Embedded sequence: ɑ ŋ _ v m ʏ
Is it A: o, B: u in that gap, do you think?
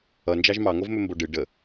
A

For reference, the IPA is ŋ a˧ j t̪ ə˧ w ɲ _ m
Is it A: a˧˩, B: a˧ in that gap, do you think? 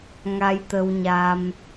B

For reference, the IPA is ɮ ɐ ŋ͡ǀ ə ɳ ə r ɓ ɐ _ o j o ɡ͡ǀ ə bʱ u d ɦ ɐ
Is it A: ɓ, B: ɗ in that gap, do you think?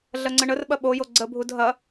A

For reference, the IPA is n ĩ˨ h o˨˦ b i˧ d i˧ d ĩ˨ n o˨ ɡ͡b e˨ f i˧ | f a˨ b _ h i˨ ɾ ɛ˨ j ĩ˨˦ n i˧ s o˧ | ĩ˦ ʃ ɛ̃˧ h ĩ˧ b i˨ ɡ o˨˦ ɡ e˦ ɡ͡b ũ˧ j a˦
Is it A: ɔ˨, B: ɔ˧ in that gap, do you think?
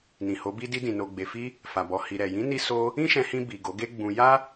A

